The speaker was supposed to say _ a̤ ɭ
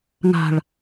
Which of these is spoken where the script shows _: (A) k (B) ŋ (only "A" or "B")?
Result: B